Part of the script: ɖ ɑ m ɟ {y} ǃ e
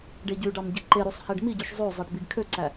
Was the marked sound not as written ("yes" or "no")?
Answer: yes